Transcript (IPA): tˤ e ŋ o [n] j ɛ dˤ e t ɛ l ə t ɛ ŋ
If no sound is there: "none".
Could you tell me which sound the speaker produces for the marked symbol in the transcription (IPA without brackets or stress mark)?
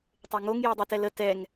ŋ